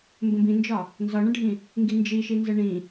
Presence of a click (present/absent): absent